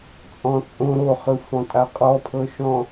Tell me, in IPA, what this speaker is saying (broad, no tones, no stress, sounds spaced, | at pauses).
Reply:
t͡sʼ ɔ̃ t͡sʼ õ ɾ o χ ɯ f ɔ̃ tʼ a qʼ ɔ pʰ ɤ ʃ ɔ̃